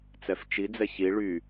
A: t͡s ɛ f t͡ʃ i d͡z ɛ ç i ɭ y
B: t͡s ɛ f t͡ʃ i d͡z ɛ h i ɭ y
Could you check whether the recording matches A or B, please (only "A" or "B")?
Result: A